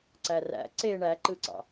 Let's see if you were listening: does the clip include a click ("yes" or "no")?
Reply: yes